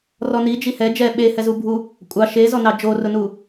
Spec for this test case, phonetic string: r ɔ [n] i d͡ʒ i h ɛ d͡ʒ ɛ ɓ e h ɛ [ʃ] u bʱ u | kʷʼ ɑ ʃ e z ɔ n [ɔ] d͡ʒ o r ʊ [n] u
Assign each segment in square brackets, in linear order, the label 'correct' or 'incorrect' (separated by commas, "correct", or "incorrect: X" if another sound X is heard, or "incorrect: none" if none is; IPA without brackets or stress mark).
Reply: correct, incorrect: z, incorrect: ɑ, correct